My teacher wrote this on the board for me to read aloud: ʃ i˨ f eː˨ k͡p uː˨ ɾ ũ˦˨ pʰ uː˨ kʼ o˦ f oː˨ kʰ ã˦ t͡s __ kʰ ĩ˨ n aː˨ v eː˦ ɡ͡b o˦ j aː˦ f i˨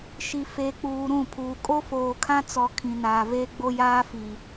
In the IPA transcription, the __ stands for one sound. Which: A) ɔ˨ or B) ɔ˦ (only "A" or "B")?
A